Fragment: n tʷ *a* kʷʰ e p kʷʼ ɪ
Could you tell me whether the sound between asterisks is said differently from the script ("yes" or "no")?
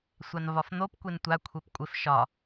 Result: no